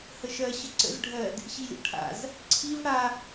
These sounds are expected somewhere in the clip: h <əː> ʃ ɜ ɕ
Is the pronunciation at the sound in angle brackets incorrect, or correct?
incorrect